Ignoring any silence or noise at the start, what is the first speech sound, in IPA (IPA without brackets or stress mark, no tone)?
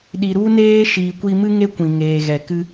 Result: ɗ